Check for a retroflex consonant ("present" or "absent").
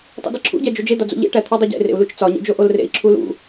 present